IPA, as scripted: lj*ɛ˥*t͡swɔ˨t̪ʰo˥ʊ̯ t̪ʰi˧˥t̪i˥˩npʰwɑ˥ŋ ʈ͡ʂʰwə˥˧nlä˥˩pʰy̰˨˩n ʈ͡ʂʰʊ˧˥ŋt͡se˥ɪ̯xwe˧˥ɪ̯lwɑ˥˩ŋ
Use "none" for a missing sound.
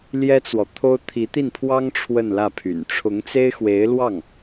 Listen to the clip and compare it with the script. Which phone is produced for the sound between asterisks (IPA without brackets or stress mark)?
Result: ɛ˥